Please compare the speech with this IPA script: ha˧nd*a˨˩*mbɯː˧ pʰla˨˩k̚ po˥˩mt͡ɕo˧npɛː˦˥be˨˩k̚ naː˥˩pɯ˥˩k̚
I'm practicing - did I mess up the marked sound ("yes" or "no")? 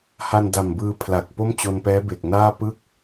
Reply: no